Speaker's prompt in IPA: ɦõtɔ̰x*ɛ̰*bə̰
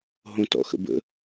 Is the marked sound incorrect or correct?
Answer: incorrect